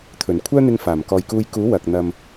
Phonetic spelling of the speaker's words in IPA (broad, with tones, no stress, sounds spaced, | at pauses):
t̪ʰ ɵ˨˩ n kʷʰ œː˥ n̪ ɪ˧ ŋ f aː˨˩ m k ɔː˨ j k uː˧ j k uː˨˥ w ɐ˨ k̚ n̪ ɐ˨ m